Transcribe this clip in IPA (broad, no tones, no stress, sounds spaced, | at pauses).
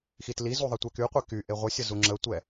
x i t l i z u ðˤ ɛ tʷ ɛ k y qʷ e k y ʔ e ʁʷ ə sʲ ə z u ŋ͡ǁ ə tʷ ɛ